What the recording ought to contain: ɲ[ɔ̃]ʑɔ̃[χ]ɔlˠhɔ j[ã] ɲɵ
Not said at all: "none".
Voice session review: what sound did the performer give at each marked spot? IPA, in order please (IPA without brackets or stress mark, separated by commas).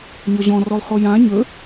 ɔ, r, ã